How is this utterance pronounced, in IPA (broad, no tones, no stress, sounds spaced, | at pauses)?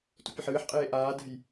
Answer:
t ṵ pʲ ɐ ħ ɨː ħ qʼ eː ʔ aː d ɛ̤ j